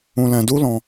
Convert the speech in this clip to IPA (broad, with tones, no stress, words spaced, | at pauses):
ũ˧lɛ̃˧du˦lɔ̃˧